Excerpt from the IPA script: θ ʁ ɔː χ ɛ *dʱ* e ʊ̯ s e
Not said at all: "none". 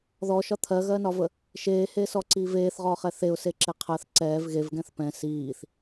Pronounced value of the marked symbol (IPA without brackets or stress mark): θ